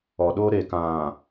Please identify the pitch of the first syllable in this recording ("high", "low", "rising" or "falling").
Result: low